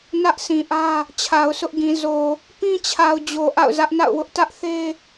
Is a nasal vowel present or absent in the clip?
present